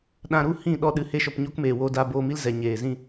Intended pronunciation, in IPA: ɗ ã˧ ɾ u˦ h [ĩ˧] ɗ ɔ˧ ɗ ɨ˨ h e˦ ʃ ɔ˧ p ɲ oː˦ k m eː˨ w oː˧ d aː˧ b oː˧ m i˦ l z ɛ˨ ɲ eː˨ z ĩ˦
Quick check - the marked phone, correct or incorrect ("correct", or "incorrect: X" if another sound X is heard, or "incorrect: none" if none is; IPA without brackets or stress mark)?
incorrect: ĩ˦˨